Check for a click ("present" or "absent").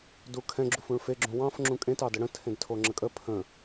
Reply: present